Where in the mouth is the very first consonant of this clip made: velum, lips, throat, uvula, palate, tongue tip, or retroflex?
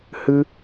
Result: throat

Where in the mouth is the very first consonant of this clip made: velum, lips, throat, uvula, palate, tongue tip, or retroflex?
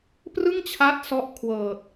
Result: lips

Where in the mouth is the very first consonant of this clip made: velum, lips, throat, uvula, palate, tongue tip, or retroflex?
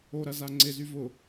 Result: tongue tip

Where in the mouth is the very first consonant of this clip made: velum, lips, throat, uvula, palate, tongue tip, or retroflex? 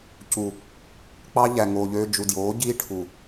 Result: palate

